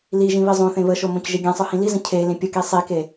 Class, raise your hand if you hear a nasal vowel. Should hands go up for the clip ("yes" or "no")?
yes